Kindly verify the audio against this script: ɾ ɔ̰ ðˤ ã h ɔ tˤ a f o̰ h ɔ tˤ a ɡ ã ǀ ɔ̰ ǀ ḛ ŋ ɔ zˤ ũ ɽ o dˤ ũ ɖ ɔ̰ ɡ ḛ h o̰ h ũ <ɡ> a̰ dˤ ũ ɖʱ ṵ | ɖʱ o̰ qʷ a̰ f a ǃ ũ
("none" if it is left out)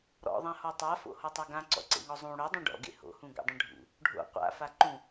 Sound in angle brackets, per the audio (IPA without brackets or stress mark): ɡ